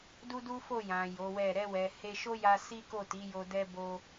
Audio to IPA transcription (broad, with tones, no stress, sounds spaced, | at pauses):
d u˦ d u˦ f o˦˨ j ã˨ j o˨˦ w ɛ˦˨ ɾ ɛ˧ w ɛ˨ h e˧ ʃ o˦ j a˧ s i˦ k o˦˨ t i˨˦ j o˧ d ɛ˧ b o˧